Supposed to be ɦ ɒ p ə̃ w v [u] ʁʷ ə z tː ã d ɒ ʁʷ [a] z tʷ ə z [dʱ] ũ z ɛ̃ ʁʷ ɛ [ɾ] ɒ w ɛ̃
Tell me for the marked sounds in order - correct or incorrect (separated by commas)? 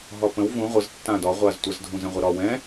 incorrect, correct, correct, correct